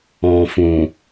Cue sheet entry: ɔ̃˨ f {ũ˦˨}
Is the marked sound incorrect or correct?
incorrect